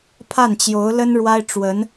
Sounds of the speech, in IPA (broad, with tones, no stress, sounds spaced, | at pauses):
pʰ a˥˩ n t͡ɕ j o˧˥ ʊ̯ l ə˥ n ɻ w a˥ ɪ̯ ʈ͡ʂ w ə˧˥ n